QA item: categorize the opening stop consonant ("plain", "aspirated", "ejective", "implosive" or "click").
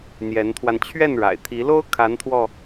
aspirated